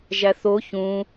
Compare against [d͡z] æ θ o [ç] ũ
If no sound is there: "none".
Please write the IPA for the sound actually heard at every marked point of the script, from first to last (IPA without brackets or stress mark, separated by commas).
ʒ, ç